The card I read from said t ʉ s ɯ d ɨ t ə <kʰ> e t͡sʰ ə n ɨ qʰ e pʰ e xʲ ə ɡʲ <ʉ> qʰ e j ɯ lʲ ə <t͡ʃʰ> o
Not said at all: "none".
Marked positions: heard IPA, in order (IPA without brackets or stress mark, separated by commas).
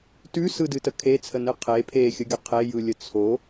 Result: kʰ, ə, t͡sʰ